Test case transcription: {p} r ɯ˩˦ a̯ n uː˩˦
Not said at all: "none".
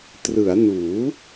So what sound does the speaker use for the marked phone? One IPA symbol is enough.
t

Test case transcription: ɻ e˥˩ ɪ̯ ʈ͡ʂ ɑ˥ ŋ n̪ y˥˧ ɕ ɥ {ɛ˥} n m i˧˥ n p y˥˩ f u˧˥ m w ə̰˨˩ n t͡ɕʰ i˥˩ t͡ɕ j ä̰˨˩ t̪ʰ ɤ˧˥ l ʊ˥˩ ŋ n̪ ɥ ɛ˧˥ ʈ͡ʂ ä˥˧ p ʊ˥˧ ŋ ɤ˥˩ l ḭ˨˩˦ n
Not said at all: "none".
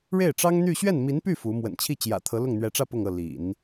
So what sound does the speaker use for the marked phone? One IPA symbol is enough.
ɛ˥˩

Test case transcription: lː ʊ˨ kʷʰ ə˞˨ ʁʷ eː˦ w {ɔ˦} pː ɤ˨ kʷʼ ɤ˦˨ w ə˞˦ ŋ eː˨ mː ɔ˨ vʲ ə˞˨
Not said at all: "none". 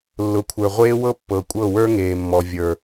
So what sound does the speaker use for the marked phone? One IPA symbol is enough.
ɤ˦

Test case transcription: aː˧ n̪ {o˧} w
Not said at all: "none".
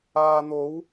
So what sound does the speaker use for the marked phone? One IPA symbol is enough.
o˨˥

